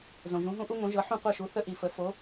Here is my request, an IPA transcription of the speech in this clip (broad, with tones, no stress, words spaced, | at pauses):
zõ˩ʒũ˩˥ɦũ˥ ʔu˥ŋõ˩˥ʒɤ˩˥ħũ˥˩ qʷɜ˥˩ʃu˩˥ θə˥ʔi˩fə˩˥ fo˩˥